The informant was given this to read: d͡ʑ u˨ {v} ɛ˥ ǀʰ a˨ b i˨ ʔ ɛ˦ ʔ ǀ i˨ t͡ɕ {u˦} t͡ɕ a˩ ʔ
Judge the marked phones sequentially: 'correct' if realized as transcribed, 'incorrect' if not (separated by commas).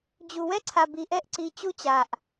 incorrect, correct